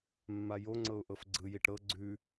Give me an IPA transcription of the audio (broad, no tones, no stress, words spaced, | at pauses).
mːajoŋ͡ǀɤʊ̯ ʔɤfɡ͡ǀɯjiʈ ɾɤ ɡ͡ǀʉ